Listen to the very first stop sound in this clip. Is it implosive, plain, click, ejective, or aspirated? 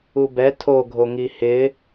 plain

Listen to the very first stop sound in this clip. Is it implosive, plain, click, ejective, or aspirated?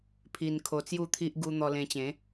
aspirated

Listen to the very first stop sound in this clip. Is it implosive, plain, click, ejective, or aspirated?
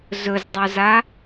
plain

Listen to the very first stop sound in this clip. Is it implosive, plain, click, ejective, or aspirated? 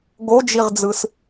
plain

